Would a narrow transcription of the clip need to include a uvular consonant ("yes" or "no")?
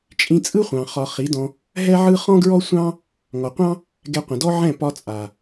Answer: yes